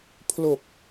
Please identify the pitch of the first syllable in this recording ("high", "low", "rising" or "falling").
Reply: low